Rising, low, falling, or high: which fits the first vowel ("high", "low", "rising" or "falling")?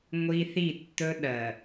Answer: high